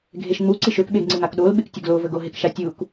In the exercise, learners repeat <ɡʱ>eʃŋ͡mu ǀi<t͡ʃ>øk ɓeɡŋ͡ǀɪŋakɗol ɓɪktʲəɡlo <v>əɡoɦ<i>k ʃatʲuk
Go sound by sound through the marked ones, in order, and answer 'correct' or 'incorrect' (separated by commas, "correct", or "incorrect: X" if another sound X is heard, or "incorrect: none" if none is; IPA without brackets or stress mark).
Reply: correct, incorrect: ʃ, correct, incorrect: ɪ